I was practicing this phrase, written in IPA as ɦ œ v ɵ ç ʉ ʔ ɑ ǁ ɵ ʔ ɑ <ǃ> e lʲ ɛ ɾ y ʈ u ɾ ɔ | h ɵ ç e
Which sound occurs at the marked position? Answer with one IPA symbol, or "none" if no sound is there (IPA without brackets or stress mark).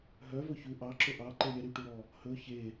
ǃ